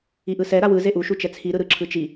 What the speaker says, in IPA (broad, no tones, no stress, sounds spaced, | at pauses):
i ʔ ɯ s ɛ ɾ a w ɯ z e ʔ u ʃ u t͡ʃ ɛ t͡sʰ i ɾ ɯ ɾ ɯ ǁʰ ɯ t͡ʃ i